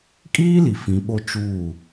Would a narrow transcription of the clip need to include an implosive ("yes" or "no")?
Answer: yes